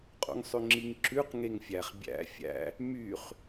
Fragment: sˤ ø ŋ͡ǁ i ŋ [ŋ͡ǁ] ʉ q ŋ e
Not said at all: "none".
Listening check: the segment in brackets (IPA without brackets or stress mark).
ǁ